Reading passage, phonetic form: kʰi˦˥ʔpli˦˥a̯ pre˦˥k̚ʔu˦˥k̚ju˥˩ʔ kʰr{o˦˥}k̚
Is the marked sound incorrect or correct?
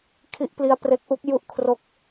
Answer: correct